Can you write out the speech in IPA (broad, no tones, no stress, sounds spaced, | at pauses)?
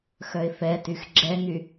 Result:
x œ ɪ̯ f ɛ t y x ɡ͡ǁ ɛ ŋ y